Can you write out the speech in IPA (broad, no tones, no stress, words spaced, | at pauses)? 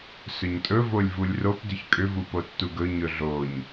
sɵɲtʼɵ volʲvulʲrop dʏçkʼʏ vupotːuɡɵ ɲɵɮoɲ